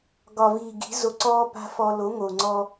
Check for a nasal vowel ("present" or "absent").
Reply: absent